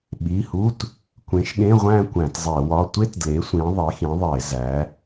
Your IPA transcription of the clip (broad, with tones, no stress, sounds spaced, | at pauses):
ɓ i˩˧˩ h u˧˥˧ t | kʷ ẽ˨˥ ʃ ɠ ẽ˧˥˧ ʁʷ æ̃˥˧ kʷ æ̃˧˩˧ t zˤ e˧˩˧ w ɒ˧˥˧ tʷ e˥ t d l e˨˥ sʷ ĩ˨˥ ðˤ e˨˥ x ĩ˨˥ ðˤ e˧˩˧ z æ˨˥